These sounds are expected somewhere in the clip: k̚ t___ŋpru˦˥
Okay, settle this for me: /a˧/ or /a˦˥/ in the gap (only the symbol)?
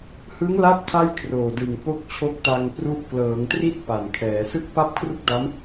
a˧